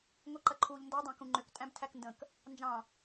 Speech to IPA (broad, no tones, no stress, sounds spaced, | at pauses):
ŋʷ i ǃ ɐ ǃʰ uː ʎ n d o dˤ ɑ̃ k ũ ŋ͡ǃ ʏ k tʼ æ̃ b tʰ æ k n d ə̃ k | n d͡ʒ ɑ̃